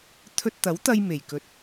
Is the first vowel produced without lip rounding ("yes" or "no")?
no